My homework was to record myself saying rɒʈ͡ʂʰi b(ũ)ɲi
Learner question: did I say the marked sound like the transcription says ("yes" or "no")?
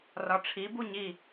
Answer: no